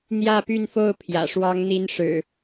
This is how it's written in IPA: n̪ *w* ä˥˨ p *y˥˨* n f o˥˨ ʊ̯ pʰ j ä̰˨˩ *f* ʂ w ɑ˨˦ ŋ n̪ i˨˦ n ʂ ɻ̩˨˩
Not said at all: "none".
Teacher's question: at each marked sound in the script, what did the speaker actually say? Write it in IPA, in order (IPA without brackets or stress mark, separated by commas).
j, y˥˨, none